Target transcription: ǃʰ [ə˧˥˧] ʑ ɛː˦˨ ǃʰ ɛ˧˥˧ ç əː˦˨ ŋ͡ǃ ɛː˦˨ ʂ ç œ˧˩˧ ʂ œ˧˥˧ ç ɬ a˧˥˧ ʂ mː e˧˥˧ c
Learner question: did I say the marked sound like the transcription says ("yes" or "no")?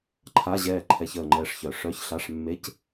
no